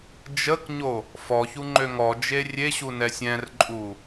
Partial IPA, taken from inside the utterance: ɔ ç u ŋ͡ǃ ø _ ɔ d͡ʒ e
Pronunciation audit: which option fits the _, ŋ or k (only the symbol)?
ŋ